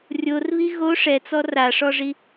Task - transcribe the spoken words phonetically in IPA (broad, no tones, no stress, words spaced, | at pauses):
rʲorβi ɣo ʂɛt͡sɔ raʂɔʐi